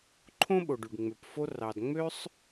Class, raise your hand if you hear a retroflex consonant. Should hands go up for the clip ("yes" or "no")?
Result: yes